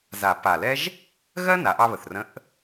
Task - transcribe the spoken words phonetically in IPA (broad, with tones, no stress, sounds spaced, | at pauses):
z a˨˩˦ p a˨˩ l ɛ˥ ʒ | ɣ ɜ˥ n a˩˥ ʔ ɑ˥ β ə˨˩ θ r ə̃˧˥ ʔ